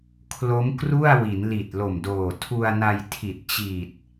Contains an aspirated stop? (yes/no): yes